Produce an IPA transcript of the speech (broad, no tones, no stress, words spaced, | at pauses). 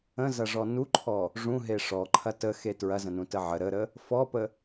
ə̃zɐʐɔ nuǃʰɔ | ʐũɦe ʂɔǃʰɐ təxe tɹɐzə̃nũtə ʕə ɾəɾə | fɔpə